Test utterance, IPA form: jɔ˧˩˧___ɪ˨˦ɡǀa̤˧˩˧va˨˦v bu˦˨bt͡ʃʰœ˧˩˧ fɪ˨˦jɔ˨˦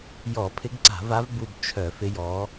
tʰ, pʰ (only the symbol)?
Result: pʰ